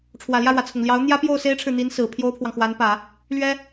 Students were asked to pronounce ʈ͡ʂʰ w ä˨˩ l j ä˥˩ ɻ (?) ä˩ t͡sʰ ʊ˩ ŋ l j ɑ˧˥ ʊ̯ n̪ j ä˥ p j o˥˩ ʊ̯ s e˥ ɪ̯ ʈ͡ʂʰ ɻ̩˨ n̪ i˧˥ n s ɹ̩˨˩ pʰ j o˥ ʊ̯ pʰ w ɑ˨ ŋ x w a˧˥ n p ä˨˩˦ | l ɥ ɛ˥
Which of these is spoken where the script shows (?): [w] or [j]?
w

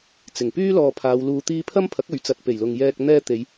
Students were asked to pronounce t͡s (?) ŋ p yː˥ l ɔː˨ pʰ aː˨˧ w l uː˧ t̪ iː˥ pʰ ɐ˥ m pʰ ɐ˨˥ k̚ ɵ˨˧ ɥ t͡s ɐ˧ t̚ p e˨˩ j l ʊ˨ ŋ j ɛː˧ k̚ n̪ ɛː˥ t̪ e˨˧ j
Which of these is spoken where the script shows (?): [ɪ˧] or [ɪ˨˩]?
ɪ˨˩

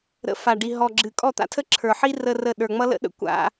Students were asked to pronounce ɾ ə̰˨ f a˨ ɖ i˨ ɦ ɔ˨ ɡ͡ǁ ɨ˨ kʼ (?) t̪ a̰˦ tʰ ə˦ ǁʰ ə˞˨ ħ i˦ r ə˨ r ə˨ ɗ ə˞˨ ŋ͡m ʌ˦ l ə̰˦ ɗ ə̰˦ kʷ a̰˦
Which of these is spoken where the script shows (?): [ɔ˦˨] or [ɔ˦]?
ɔ˦˨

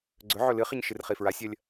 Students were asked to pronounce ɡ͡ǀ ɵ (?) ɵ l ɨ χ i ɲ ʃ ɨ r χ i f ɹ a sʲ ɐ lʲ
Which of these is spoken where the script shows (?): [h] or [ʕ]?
ʕ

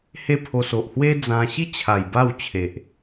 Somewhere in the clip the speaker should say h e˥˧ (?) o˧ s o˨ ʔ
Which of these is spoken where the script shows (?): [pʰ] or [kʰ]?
pʰ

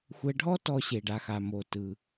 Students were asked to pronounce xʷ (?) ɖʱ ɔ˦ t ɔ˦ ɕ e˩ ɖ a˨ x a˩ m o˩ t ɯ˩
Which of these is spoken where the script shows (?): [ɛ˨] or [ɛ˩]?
ɛ˨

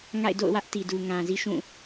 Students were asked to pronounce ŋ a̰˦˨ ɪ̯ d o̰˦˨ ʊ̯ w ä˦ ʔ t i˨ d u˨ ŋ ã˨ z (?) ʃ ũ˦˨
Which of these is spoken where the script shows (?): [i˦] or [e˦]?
i˦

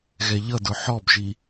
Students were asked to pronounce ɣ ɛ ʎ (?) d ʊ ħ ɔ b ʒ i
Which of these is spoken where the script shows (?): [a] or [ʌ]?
ʌ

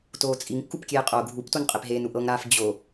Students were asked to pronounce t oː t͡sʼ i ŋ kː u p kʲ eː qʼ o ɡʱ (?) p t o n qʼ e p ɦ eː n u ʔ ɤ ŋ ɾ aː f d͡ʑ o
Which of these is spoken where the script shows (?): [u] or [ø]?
u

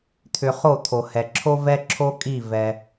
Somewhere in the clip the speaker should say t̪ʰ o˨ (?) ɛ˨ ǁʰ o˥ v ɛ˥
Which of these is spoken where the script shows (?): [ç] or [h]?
h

